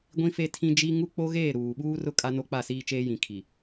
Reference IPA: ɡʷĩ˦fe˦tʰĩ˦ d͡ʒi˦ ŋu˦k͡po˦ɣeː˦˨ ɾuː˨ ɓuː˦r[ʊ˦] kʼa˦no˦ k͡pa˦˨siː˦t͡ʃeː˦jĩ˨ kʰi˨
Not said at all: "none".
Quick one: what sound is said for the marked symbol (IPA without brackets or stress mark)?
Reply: ʊ˦